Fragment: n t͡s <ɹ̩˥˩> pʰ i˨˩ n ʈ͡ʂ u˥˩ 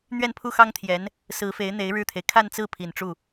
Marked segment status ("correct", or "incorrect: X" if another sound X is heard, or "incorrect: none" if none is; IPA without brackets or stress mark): correct